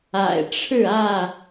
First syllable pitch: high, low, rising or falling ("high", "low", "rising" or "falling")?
low